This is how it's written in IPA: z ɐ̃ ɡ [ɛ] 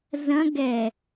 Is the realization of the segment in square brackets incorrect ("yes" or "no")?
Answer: no